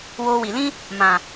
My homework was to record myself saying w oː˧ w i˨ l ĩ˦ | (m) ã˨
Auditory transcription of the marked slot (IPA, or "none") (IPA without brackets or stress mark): m